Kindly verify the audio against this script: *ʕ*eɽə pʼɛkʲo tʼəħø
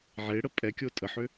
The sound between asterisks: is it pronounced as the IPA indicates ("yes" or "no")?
yes